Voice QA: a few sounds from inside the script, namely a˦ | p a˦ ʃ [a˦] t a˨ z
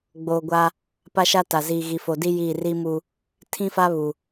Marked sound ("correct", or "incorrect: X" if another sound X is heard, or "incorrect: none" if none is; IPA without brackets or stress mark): correct